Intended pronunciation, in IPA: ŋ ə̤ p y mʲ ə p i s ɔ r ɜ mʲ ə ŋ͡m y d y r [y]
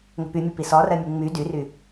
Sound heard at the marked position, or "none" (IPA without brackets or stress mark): y